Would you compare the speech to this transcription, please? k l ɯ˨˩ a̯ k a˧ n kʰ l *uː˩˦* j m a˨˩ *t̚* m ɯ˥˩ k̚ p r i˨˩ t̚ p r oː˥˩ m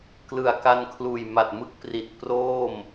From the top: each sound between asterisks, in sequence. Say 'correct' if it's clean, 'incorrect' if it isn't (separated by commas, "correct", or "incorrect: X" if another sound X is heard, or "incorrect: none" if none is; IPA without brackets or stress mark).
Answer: incorrect: uː˨˩, correct